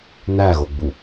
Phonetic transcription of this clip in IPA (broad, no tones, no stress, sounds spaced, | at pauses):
n æ ɣ o ɡ͡b u